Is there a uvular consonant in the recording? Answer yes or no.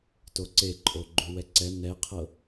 yes